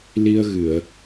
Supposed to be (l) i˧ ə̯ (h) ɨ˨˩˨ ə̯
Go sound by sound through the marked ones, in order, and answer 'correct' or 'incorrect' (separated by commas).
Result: correct, incorrect